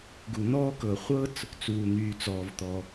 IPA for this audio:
ɡ u˩ n̪ ɔː˥ k ɤ˩ χʷ ɤ˥ t͡s | t͡s uː˩ n̪ yː˩ t͡s ɔː˩ v t̪ ɔ˩

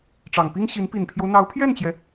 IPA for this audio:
ʈ͡ʂ ɑ˨˩ ŋ p i˥ ŋ ɕ i˧˥ n p i˨˩ n pʰ j o˦ ʊ̯ n̪ ɑ˧˥ ʊ̯ pʰ j ɛ˥˩ n t͡ɕ j ɛ˩

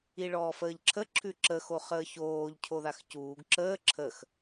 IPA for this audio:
i ɭ ɔː f əː ʎ ǁʰ ə ǁʰ ʉ ǁ ə x o χ əː ç oː ʎ cʰ o ð a x c uː ɡ ǁ əː ǁʰ ə x

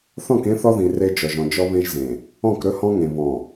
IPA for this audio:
θ ɔ̃˦˨ k ẽ˦ θ ɔ˦ ð ĩ˨ r e˦ d͡ʒ ɔ˨ ʒ ɔ̃˨ d͡ʒ ɔ˦ β ẽ˦ ʒ z ẽ˨ | ɔ̃˦˨ k ɾ ɵ˦ h ɔ̃˦ ŋ ẽ˨ β ɔ̃˨

